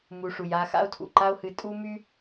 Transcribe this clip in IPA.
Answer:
m u˨ ʂ u˩ j a˦ x a̰˥ o̯ tʰ ṵ˩ ǃ a˦ o̯ h ɨ˨ tʼ u˥ m y˥

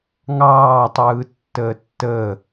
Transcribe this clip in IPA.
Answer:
ŋ ɑː tˤ ɯː tː əː tː əː

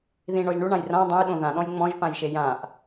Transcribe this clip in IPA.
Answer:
ð ĩ ɳ ɔ ʒ ɳ u ɳ ã j r ã dˤ ɛ̃ j ɗ õ ð ã ɗ ɔ̃ j ŋ͡m ɔ̃ ʒ p ã j ʃ e j ã ʔ

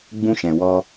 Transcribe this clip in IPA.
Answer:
ɡ͡b ũ˧ ʃ ɛ̃˨ w ɔ˧

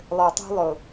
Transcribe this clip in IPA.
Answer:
lˠ ə˞˨ tˤ ṳ˦ lˠ ʊ˨

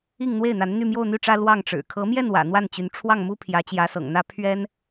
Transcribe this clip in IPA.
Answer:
i˥˧ ŋ n̪ w e˥˩ ɪ̯ n̪ a˧˥ n n̪ y˥˧ m j o˥˧ ʊ̯ n̪ y˥˩ ʈ͡ʂ ä˥ l w ɑ˥˩ ŋ ʈ͡ʂ ɻ̩˨˩ kʰ ɤ˧˥ m j ɛ˥˩ n w ä̰˨˩ n̪ w a˥˩ n t͡ɕ y˧˥ n ʈ͡ʂʰ w ɑ˥˩ ŋ m u˥ pʰ j ä˧˥ t͡ɕ j ä˧˥ s ɤ̰˨˩ ŋ n̪ ä˥ pʰ ɥ ɛ˥ n

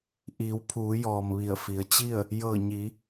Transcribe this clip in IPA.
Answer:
ʔ iː˩˧ w pʰ uː˩˧ j ɔː˩ m ʋ i˧˩ ə̯ f i˩˧ ə̯ t͡ɕ i˥˨ ə̯ | j ɤː˧˩ ɲ i˩˧

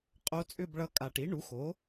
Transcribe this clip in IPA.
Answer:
qʼ o˧˥ t͡sʼ ʏ˥˧ b ɭ ʌ˧˥ kʼ a˨˩ ʈ i˩˥ ɳ u˩˥ x o˩˥

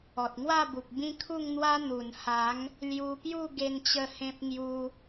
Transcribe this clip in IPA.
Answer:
ɔ˨ t̚ ŋ w a˥˧ b u˨ k̚ b ĩ˦ kʰ u˥˧ ŋ n̪ w a˦ n̪ u˨˩ n h a˨˦ ŋ | l j u˧ p j u˥˧ ɡ e˧ n t͡ɕ ə˥˧ h ẽ˦ p̚ ŋ j u˧

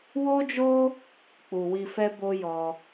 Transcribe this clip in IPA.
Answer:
w o˦ d͡ʒ o˦ | k͡p u˨ w i˧ f ɛ˦ b o˦ j ɔ˧

